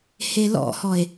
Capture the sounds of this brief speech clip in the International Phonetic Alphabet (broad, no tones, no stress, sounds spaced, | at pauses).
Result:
h e l ɔ̰ h ɔ e̯